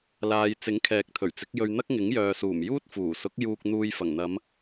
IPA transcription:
l aː˨ j t͡s ɪ˨˥ ŋ kʰ ɛː˨˥ k̚ t̪ʰ ɵ˨˩ ɥ t͡s ɪ˨˥ k̚ j ɵ˧ ɥ n̪ ɐ˥ k̚ ŋ ɪ˨˥ ŋ j œː˨ s uː˨˩ m j uː˥ t̚ f uː˨˩ s ʊ˨˥ k̚ j uː˧ k̚ n̪ uː˧ j f ɐ˨˩ ŋ n̪ ɐ˨˧ m

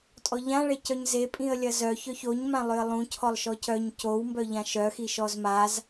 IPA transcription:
tʼ ɔ ʎ ã ɭ e c œ ɲ z e pʼ ĩ ə̯ lʲ ɐ z œ ç œ ç o ɲ m ã lˠ ʏ ə̯ lˠ ũ cʰ ɔ lˠ ʃ ɔ c œ ɲ c o w m b œ ʎ ã ʃ œ x i ʃ ɔ z m a z

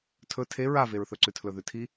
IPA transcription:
tʰ ɵ tʰ e ɹ a v e ɹ θ ɵ ǀ ʉ tʰ l ɵ ð ʉ tʰ i

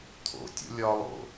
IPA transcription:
t̪ʰ o̰ tʲ o̰ lʲ ɒ lˠ o̰

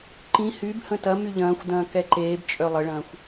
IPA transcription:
ǃ ĩ h y b h ə̃ t ɐ m y ʎ ɐ̃ː xʷ d ɐ̃ː k ɛ ǃ eː b t͡ʃʼ œ lˠ ə ɭ ɐ̃ː xʷ

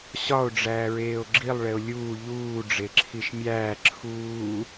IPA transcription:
ɕ ɒ o̯ ɖ͡ʐ æː ɹ eː o̯ ɡ͡ǁ i lˠ ɭ e o̯ lʲ uː ʎ uː ɖ͡ʐ e ǁʰ i ʃ mʲ æː ǁʰ uː

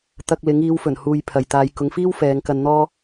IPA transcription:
t̪ ɐ˧ k̚ l ɪ˨˥ ŋ iː˨˧ w f ɵ˨˩ n h uː˧ j pʰ ɐ˨ j t̪ aː˧ j k ʊ˨˧ ŋ f iː˥ w f ɛː˨˧ ŋ k ɐ˧ n n̪ ɔː˥

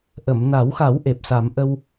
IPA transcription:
ʔ ə˨˩˨ m n a˨˩˦ w x a˨˩˦ w ʔ e˨˩ p̚ s a˨˩˦ m ʔ ə˧ w

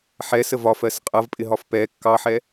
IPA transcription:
ħ ɛ s ə v ɒ f ɜ s qʼ ʌ v pʼ ɪ ɦ ɒ f p ɛ kː ɑ ħ ɛ

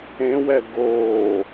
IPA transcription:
ẽ w ɛ ɡ oː

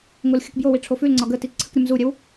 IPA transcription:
ŋ o l xʲ ə k b j o w i ʈ͡ʂʰ o f ʉ l ŋ͡ǀ ɒ ɡ ə t i ǀʰ ə k ɾʲ ə m z u ɾʲ ɛ w

